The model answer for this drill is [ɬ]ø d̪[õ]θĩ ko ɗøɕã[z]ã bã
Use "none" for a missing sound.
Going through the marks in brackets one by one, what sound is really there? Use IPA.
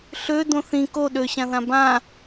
ɬ, õ, ð

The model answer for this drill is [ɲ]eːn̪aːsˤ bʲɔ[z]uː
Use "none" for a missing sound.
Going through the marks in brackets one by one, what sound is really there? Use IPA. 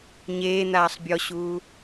ɲ, ɕ

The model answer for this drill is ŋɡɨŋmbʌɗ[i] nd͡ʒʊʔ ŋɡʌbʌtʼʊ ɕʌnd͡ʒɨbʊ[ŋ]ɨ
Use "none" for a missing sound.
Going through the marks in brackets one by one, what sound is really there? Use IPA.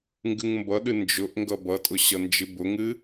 ɨ, ŋ

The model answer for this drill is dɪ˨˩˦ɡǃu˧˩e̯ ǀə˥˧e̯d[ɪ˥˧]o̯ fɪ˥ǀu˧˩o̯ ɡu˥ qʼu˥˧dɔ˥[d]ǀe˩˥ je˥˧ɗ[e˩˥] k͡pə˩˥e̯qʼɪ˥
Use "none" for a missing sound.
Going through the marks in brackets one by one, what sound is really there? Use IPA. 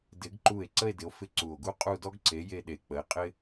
ɪ˩˥, ɡ, e˨˩˦

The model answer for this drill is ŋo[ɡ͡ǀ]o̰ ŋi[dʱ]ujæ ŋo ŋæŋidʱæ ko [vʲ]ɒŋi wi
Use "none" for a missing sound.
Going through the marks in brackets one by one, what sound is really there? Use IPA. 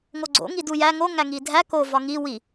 ɡ͡ǀ, d, v

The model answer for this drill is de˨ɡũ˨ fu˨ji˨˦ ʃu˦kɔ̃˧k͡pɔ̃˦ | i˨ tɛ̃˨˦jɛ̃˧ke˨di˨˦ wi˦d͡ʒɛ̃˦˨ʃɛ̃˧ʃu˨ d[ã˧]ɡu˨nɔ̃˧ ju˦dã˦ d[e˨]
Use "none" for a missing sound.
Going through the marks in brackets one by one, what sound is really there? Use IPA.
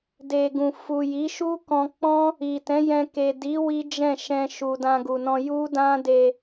ã˧, e˧

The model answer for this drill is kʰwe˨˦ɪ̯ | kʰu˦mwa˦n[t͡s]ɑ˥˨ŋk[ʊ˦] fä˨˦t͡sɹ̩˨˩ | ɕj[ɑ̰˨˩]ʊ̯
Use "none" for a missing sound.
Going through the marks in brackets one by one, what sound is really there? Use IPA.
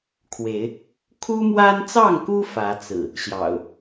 t͡s, u˦, ɑ̰˨˩

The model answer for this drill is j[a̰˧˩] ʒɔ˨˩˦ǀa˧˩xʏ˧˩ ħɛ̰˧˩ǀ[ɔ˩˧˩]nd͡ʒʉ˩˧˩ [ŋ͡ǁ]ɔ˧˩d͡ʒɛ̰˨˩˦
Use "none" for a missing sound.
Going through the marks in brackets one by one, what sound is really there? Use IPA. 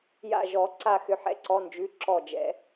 a̰˧˩, ɔ˩˧˩, ǁ

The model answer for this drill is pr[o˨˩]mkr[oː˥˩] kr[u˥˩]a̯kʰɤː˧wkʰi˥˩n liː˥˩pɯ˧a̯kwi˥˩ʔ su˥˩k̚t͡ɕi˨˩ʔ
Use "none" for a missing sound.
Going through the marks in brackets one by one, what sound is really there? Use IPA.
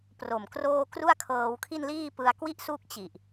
o˨˩, oː˥˩, u˥˩

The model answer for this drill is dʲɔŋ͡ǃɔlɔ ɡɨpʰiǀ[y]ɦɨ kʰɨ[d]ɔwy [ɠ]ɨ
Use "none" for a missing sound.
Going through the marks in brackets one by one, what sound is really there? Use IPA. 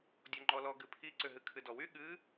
ʏ, d, ɠ

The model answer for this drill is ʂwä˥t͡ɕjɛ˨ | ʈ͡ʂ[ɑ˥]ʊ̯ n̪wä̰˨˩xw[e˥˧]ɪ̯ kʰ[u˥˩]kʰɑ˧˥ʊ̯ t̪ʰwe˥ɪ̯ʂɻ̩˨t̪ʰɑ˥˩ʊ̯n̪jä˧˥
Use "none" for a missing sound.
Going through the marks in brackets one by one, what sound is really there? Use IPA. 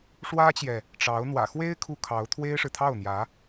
ɑ˧˥, e˥, u˥˩

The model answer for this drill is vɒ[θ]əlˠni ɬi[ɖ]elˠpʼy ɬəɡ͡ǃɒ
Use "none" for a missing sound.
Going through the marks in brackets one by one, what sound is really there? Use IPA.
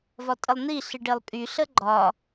tʼ, ɖ

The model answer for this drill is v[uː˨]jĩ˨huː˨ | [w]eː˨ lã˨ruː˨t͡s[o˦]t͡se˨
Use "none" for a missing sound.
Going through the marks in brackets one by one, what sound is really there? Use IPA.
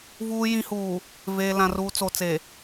uː˨, v, o˨

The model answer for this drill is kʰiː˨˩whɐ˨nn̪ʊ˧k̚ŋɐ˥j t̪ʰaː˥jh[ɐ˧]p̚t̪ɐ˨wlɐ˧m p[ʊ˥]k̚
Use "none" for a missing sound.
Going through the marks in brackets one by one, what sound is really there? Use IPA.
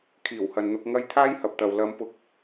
ɐ˨, ʊ˧

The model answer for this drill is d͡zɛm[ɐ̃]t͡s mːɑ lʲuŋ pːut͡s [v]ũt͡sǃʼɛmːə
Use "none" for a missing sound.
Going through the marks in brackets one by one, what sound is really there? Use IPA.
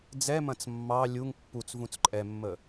ɐ̃, v

